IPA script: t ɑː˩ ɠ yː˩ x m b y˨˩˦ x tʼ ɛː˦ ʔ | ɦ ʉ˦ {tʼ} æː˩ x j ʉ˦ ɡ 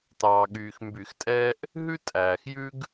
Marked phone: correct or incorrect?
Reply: correct